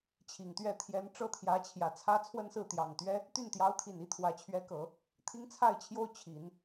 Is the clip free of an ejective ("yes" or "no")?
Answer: yes